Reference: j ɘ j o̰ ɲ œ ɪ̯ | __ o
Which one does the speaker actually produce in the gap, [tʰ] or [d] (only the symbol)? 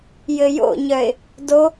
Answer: d